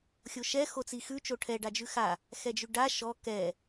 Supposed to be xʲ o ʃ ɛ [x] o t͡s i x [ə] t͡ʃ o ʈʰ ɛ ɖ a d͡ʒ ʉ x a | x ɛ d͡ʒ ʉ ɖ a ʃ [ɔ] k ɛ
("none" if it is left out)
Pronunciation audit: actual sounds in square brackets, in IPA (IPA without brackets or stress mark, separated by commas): x, ʉ, ɔ